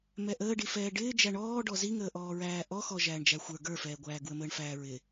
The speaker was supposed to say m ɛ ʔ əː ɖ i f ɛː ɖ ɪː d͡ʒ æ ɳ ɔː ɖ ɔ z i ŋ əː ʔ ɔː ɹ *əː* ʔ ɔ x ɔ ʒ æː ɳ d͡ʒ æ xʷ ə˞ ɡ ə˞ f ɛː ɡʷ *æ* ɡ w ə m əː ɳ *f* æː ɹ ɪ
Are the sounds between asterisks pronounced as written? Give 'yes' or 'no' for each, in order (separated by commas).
no, no, yes